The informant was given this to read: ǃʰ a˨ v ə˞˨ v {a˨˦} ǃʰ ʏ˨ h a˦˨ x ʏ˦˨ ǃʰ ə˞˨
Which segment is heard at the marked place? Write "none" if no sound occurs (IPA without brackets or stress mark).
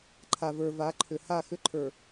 a˨˦